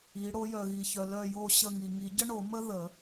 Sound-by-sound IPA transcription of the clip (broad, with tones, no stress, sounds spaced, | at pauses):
i˨˦ ɽ o˨˦ j œ˨ ɣ i˨ ç œ˨ l œ˦˨ j o˦˨ ɕ ə˦˨ ŋ i˨ ŋ i˨˩˦ ɟ ə˥ ɳ o˨˩˦ m ə˥ ð ə˨˩˦